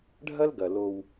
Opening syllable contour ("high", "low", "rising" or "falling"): high